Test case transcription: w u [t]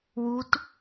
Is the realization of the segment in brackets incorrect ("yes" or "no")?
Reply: no